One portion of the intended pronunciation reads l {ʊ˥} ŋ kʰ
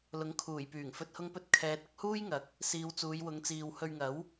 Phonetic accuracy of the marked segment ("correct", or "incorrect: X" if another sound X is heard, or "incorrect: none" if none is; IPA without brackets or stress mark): incorrect: ʊ˨˥